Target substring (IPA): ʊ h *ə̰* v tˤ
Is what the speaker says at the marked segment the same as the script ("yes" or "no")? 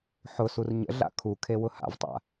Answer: no